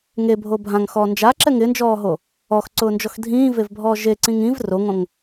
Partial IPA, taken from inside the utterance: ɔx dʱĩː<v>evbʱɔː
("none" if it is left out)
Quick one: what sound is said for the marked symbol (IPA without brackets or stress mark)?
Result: v